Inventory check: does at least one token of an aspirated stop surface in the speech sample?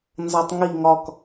no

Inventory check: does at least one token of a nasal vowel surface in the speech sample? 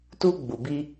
no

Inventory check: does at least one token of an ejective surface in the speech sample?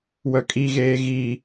yes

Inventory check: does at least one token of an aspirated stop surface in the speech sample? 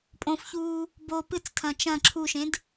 yes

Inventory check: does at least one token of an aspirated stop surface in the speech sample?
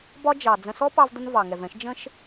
no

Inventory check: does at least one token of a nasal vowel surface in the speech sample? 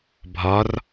no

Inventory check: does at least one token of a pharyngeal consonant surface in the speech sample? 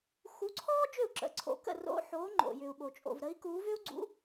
yes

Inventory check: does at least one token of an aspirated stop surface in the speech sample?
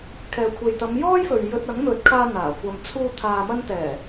yes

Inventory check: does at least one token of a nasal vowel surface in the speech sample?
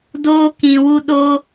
yes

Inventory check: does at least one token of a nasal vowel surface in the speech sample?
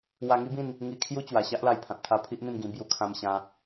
yes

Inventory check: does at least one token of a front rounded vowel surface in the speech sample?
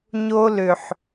yes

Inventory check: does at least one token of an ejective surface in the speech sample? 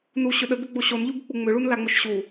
no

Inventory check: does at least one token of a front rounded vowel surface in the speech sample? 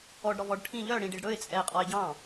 yes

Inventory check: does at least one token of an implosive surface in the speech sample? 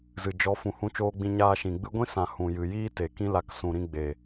no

